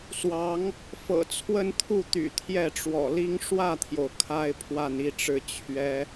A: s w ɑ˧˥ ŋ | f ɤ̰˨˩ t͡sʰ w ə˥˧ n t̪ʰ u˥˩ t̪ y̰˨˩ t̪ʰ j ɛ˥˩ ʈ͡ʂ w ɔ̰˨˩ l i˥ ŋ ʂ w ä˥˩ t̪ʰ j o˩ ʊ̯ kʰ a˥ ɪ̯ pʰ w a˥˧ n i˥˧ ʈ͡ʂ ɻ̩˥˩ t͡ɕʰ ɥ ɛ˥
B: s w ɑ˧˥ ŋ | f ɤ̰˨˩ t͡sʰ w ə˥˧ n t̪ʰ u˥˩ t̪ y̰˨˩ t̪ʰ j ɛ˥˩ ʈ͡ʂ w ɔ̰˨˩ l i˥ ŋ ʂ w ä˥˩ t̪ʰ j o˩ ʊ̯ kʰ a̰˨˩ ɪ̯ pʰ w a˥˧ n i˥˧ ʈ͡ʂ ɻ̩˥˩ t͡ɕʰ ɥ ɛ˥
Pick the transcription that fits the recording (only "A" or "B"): A